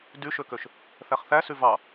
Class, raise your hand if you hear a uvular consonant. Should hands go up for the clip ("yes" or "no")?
yes